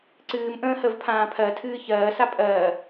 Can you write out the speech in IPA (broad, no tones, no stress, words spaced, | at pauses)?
ǀɨːm ʔə̃ːhəvpʰãː pʰɜtʰɨː çɜːsa pʼɜː